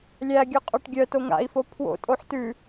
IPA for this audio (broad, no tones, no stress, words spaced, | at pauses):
lʲæɡʲœqʼɵʈ ɡʲœto ŋa̰i̯fo pʰwo̰tʼoħ tʉ